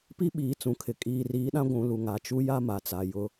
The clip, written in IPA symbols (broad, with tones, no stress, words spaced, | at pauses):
pi˦ɓiː˨ t͡sũ˨kʰɪ˨ kʼiː˨riː˨˦ɗã˦ ɡʷũ˨ lu˨ŋa˨t͡ʃu˦ ja˦ma˨t͡sa˨ jʊ˦